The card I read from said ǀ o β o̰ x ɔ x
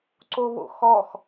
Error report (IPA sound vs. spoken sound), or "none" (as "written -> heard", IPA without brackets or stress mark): none